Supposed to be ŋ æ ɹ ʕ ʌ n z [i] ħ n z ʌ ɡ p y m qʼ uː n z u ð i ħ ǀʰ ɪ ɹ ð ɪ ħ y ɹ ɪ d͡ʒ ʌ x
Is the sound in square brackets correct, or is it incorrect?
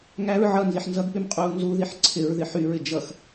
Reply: correct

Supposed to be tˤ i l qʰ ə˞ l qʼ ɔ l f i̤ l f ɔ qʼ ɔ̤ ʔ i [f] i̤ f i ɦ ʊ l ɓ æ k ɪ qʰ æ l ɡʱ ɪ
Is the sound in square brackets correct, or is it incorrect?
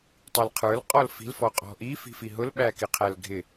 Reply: correct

